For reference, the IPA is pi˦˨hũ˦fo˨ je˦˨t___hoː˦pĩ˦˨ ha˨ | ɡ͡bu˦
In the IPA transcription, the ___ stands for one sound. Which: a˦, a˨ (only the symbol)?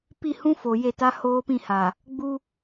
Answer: a˦